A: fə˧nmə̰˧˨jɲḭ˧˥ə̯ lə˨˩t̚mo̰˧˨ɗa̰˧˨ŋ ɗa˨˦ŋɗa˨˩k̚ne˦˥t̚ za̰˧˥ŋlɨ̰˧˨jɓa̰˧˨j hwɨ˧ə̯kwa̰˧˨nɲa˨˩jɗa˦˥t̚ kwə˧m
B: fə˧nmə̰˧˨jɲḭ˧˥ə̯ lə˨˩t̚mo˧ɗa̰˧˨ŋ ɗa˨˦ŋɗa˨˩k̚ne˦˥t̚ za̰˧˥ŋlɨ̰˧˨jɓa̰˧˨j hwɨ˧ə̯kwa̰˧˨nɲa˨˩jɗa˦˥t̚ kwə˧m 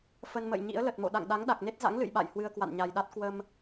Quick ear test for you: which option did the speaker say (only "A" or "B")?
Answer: A